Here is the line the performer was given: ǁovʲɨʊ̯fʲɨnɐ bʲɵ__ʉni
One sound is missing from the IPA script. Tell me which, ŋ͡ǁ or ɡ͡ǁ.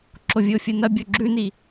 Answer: ɡ͡ǁ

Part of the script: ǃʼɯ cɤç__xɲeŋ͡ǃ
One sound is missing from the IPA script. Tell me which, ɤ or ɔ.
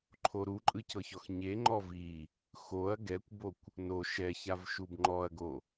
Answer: ɔ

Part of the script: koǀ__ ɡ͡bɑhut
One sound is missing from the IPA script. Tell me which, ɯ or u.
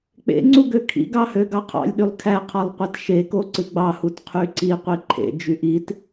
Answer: ɯ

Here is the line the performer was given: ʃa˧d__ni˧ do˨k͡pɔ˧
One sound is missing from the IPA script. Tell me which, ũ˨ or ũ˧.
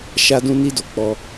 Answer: ũ˧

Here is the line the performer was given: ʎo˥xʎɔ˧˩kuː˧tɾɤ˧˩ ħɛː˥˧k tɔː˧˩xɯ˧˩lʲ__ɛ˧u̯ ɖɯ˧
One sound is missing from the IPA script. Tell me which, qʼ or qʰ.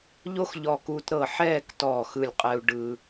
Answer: qʼ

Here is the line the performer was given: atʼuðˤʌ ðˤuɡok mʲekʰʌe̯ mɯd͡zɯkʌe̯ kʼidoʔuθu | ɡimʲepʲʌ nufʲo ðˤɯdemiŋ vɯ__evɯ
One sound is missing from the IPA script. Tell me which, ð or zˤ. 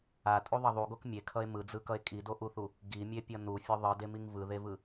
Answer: ð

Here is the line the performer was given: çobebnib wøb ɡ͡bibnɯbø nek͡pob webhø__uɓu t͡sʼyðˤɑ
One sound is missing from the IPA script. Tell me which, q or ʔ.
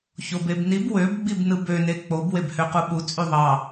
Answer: q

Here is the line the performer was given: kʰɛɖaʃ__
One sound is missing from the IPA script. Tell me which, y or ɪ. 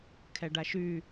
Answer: y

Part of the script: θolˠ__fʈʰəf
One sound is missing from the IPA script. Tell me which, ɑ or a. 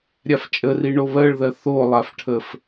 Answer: a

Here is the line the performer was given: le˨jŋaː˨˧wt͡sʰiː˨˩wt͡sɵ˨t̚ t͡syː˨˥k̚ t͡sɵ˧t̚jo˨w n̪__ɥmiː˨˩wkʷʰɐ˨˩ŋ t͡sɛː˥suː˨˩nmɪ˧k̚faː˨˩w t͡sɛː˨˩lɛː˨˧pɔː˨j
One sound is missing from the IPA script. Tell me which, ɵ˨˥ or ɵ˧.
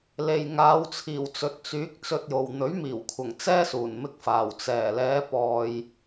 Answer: ɵ˨˥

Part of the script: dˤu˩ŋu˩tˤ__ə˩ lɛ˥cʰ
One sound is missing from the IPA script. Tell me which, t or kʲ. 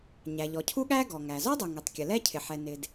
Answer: kʲ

